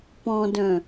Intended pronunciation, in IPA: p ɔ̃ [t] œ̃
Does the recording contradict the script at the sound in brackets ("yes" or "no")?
yes